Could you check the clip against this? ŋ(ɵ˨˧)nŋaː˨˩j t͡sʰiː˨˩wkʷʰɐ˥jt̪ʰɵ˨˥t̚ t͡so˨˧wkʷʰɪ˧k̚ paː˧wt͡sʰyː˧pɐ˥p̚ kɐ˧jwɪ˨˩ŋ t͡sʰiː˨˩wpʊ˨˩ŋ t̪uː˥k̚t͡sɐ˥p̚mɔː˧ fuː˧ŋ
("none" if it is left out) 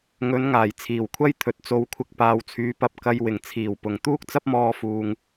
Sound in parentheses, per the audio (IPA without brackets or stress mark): ɵ˨˧